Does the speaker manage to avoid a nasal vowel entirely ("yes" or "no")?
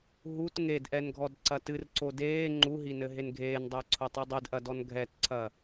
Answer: yes